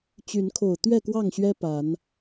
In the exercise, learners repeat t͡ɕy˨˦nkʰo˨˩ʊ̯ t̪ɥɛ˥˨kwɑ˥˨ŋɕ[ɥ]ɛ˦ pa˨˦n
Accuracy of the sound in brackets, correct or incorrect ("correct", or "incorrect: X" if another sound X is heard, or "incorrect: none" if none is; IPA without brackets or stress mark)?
correct